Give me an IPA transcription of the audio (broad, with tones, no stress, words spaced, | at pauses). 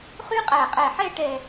χy˥qʼæ˧˩qʼɛ˧˩ħɛ˥˧ ʈɛ˥˧